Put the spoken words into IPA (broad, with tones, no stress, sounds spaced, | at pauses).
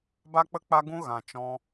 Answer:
b a˦ k͡p ə˦ k͡p a˦ ɡ ũ˦ ɣ ã˨ t͡ʃ ɔ̃˧